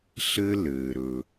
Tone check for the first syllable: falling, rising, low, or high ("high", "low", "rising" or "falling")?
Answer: high